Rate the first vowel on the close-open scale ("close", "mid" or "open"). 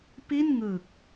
close